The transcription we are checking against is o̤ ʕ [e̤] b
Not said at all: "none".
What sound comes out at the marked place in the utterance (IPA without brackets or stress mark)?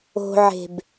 e̤